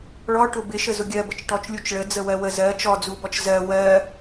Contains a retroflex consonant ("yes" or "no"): yes